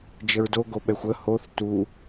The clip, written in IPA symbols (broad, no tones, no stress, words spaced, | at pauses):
d͡ʒəɹdo ɡoɓɛxʷə hoθ tu